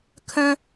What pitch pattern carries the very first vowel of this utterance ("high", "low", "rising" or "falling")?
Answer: high